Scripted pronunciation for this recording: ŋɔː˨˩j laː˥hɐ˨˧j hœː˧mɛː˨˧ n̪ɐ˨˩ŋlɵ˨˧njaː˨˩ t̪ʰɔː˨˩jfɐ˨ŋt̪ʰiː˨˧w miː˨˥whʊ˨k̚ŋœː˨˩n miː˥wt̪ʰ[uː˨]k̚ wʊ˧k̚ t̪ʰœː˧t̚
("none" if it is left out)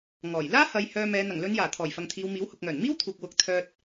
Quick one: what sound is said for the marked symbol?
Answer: uː˨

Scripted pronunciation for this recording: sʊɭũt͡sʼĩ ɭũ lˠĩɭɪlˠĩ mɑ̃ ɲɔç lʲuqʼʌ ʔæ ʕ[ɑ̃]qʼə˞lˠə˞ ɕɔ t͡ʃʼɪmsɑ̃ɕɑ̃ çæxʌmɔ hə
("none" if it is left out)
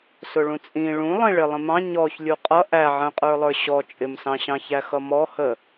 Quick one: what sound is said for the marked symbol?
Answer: ə̃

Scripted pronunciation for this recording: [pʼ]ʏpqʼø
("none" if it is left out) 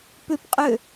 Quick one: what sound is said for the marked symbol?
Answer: p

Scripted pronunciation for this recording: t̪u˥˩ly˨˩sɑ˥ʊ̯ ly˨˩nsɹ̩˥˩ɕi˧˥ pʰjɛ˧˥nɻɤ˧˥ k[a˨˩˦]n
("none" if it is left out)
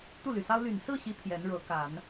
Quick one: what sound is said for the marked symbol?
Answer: a˨˩˦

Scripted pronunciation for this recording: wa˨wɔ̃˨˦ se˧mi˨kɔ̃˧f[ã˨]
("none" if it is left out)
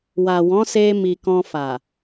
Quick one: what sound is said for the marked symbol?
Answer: a˨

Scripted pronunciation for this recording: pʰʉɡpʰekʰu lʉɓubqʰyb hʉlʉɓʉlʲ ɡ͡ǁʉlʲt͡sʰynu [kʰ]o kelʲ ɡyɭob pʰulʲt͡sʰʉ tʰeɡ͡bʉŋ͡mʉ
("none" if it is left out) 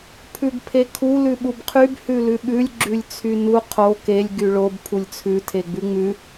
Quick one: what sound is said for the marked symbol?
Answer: qʰ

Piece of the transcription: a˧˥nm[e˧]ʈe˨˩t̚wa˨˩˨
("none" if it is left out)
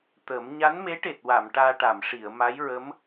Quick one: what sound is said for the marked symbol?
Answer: e˧˥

